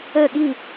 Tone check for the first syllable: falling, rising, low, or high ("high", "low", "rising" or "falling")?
falling